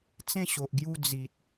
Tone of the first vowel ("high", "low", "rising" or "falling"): falling